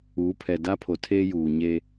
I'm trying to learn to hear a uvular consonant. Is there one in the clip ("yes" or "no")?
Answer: no